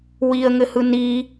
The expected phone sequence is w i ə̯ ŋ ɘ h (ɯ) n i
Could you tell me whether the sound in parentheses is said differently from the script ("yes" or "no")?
no